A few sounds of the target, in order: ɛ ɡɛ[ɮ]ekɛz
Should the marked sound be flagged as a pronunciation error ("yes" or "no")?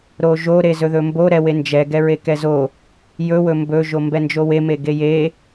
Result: yes